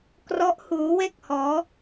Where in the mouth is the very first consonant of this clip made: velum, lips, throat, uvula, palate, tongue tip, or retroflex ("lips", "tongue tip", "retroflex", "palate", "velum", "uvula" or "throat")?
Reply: velum